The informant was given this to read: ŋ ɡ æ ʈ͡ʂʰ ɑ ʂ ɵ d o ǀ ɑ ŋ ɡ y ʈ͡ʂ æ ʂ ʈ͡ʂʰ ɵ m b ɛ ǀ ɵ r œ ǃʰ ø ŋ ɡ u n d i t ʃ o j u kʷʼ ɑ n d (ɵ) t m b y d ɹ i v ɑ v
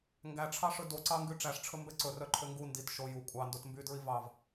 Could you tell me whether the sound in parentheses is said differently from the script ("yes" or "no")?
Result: yes